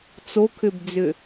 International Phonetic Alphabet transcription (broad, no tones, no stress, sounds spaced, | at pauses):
t͡s o kʰ ʏ b d͡z ʏ